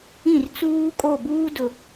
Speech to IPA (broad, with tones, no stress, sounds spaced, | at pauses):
ĩ˦˨ r t͡s uː˦ kʼ o˦˨ b uː˦ d ʊ˨